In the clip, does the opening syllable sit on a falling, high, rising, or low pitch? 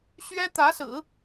high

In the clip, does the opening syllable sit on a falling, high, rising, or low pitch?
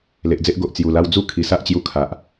low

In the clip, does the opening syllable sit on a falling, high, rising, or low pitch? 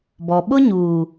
low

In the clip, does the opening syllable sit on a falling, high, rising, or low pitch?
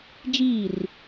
falling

